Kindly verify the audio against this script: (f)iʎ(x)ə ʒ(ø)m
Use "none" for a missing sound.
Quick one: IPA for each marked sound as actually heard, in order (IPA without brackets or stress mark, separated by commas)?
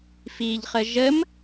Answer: f, χ, ə